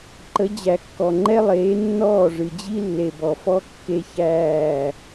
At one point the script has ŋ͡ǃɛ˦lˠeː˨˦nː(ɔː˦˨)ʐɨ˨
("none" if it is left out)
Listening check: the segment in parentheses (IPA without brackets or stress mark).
ɔː˦˨